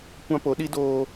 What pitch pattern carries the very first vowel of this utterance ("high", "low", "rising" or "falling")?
high